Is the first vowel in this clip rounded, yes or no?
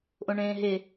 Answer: yes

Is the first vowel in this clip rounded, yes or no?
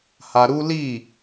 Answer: no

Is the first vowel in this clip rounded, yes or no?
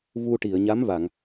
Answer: yes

